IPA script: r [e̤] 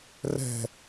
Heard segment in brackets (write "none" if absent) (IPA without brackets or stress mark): ɛ̤